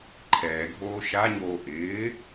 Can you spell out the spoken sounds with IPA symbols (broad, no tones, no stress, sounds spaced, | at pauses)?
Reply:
ǃʰ ɛː ɡʱ oː ʃ a ɲ oː ʔ ɪː